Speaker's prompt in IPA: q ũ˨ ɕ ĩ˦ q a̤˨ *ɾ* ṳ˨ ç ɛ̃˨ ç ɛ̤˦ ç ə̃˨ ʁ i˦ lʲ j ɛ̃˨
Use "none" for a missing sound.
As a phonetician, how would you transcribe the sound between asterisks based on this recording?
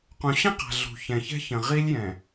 ɮ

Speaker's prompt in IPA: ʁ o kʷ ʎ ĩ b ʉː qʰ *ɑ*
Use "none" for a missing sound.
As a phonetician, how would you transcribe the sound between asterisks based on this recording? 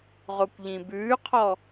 ɔ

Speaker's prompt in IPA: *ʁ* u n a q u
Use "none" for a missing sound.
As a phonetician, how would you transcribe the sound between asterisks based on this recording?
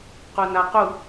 q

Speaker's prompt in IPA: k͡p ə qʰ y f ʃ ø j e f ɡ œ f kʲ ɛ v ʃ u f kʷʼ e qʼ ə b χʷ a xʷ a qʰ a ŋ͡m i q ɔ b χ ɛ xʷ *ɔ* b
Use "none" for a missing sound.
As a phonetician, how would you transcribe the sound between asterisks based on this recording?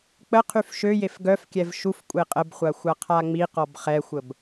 ə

